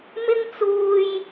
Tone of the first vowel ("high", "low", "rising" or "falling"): high